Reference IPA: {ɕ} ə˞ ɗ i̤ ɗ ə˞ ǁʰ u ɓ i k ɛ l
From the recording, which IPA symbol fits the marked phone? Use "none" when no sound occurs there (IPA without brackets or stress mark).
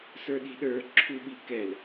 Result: s